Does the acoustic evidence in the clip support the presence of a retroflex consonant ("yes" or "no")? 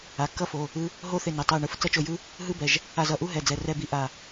yes